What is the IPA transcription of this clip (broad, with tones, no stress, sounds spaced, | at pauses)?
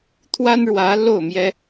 t̪ʰ w a˥ n ɻ w ä˧˥ l o˥˩ ʊ̯ m j ɛ˥